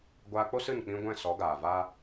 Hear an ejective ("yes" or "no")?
no